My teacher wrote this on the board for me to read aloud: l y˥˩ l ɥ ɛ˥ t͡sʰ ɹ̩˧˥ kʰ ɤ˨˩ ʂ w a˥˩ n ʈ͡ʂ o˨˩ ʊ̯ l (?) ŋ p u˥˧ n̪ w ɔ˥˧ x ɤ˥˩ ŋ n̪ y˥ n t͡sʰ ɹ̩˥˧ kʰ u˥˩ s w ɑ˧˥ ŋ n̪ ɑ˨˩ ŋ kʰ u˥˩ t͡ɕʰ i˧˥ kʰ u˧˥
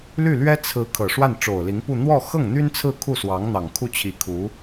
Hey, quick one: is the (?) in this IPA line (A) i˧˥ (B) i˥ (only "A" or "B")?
A